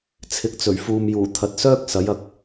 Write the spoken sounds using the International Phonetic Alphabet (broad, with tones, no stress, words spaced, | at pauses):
t͡sʰɪ˨˥k̚t͡sɵ˨˩ɥfuː˨mjuː˨˩ t̪ʰɐ˨t̚sœː˥k̚ sɐ˨˥jɐ˨˥k̚